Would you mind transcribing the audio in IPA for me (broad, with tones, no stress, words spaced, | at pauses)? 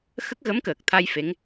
xə˦˥k̚ɣə˧˥mkəː˨˩k̚t̪ʰa˧j fe˧˥ŋ